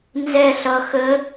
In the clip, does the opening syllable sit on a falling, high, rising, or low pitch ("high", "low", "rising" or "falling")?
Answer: falling